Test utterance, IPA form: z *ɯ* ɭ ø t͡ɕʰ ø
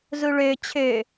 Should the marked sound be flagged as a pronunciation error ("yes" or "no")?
yes